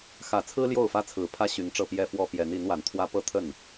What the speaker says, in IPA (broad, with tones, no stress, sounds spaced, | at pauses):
x ä˨˩ t͡sʰ ɹ̩˥ l j o˥˩ ʊ̯ f ä˥ t͡sʰ ɹ̩˨˩ pʰ ä˥ ɕ y˧˥ n ʈ͡ʂ ɤ˥˩ p j ɛ˥ f w ɔ˥ p j ɛ˧˥ n i˧˥ n w a˨˩ n t̪ʰ w ä˥ p ɤ˥ t̪ʰ ə˥˩ n